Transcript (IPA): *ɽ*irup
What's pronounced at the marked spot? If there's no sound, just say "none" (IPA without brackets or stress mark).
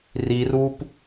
r